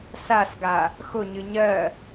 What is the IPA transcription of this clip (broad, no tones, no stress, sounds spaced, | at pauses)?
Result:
s a s ɡ a | x ʊ ɲ ɨ ɲ ɜ